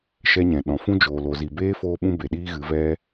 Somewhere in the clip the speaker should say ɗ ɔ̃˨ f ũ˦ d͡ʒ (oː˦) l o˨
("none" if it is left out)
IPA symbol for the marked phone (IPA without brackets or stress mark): oː˨